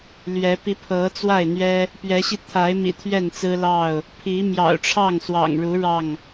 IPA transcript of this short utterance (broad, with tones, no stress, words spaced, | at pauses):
lɥɛ˨˦ pi˨˦ pʰɤ˨˦ t͡swa˥˨ɪ̯n̪ɥɛ˦ | pɥɛ˨˦ɕi˧ t̪ʰa˨˦ɪ̯mḭ˨˩ t̪ʰɥɛ˥˨nt͡sɹ̩˦ lɑ˥˨ʊ̯ | pʰi˨˦ mjɑ̰˨˩ʊ̯ʈ͡ʂʰɑ˥˨ŋswɑ̰˨˩ŋɻu˨˦ ɻɑ˥˨ŋ